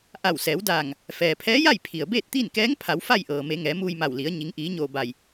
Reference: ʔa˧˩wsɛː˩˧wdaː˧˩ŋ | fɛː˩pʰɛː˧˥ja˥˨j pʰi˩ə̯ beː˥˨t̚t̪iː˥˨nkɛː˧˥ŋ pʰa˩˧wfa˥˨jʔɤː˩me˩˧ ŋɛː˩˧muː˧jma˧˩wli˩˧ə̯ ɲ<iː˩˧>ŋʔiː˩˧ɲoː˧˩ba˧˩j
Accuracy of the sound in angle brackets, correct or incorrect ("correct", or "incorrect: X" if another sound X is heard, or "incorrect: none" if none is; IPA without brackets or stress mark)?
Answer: incorrect: i˩˧